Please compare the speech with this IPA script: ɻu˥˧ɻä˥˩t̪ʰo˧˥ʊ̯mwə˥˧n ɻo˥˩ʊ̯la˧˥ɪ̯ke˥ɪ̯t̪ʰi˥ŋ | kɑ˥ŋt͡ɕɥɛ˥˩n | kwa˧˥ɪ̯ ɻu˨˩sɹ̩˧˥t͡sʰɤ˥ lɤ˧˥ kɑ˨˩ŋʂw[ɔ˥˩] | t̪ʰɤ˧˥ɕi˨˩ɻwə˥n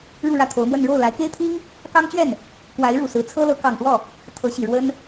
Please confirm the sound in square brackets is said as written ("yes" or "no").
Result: yes